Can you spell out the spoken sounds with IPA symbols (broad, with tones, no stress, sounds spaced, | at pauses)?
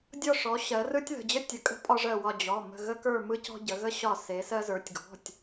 dʲ ɔ˧˩ ʂ ɔ˩˧ ɕ ɜ˩˧ r ɯ˧ tʲ ð ə̤˩˧˩ d͡ʑ ə˧ tʲ ə˩˧ kʼ ə̤˧ pʼ ɒ˧ ʐ ɜ˧˩ w ɒ˧˩ d͡ʑ ɔ˩˧˩ m ə̤˧˩ ɣ ə˧ k ə˞˧˩ m ɯ˧ c ɔ̤˧ ɟ ə˩˧ ɣ ə˧ ɕ ɒ˧˩ s e˩˧ s ɜ˧ z ə˞˩˧ tʲ ɡ ɔ̤˩˧˩ tʲ